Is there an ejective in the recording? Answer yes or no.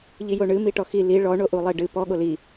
no